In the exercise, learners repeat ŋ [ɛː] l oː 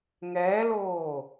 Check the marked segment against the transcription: correct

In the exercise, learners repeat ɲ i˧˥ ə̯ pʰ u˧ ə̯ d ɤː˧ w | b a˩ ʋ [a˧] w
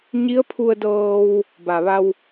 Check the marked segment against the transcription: correct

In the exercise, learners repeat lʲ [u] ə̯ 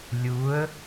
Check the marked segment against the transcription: correct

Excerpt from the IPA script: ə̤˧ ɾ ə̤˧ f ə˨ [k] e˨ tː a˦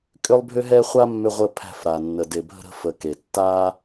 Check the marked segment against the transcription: correct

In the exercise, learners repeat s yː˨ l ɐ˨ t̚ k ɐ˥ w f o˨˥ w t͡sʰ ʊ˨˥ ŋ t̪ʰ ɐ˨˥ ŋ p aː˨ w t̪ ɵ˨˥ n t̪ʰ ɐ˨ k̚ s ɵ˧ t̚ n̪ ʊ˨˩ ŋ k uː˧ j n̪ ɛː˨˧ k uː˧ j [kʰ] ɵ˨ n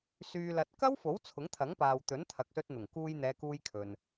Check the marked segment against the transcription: correct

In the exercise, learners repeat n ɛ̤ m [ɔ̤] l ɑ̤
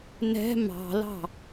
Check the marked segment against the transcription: incorrect: ɑ̤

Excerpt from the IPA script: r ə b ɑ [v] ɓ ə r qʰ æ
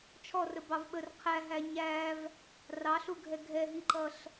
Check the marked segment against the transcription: correct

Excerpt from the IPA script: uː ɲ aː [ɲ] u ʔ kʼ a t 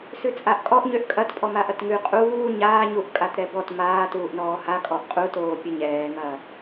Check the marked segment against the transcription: correct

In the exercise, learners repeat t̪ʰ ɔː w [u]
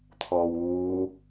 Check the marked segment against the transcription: incorrect: uː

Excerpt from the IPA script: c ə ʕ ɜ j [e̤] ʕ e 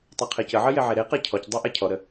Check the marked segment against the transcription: incorrect: e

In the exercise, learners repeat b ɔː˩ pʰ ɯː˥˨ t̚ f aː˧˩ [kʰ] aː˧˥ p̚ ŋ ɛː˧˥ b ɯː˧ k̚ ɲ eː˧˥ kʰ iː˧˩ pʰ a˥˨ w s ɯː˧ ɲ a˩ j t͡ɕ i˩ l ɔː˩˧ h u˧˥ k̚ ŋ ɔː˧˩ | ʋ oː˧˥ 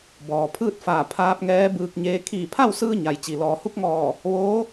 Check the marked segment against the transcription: incorrect: pʰ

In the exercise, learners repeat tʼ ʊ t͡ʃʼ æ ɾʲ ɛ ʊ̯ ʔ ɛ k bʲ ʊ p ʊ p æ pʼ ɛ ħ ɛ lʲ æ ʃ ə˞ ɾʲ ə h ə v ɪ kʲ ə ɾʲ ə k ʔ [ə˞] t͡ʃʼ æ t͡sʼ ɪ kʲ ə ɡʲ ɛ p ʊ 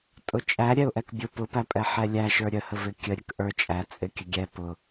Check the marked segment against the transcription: correct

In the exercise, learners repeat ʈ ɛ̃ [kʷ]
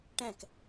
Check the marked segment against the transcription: incorrect: k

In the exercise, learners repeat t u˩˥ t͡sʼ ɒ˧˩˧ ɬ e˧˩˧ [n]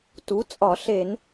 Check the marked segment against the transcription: correct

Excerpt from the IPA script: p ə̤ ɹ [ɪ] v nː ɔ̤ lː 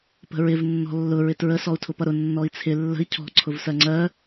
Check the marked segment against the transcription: correct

